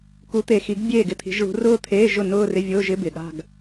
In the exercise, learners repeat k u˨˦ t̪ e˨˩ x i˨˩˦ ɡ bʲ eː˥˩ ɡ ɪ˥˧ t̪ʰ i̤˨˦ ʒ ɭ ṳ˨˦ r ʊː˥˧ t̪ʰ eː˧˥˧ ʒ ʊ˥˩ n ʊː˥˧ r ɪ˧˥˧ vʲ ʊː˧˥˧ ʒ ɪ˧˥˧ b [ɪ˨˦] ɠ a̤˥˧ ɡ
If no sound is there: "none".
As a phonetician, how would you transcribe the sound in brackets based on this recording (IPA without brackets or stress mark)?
ɪ˨˩